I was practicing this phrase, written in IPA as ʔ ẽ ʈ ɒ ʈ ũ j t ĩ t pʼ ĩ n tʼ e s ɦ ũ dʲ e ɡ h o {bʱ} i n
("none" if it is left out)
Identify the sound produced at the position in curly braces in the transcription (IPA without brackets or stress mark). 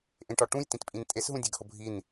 bʱ